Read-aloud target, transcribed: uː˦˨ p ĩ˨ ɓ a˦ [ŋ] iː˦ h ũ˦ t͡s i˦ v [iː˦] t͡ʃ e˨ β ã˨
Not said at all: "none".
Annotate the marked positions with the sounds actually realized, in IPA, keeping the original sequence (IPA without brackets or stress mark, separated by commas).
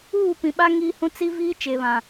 ŋ, iː˦